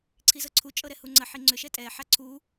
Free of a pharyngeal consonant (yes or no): no